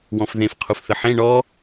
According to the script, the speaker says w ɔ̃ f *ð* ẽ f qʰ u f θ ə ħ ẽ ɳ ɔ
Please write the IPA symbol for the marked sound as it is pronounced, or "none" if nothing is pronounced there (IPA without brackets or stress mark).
ð